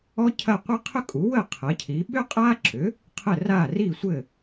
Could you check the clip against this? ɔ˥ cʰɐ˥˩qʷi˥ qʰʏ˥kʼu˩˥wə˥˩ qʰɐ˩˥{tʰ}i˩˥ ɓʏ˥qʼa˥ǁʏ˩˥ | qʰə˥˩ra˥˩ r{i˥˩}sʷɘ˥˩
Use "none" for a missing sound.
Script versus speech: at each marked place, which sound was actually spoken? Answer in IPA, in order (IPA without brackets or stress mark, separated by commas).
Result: cʰ, i˥˩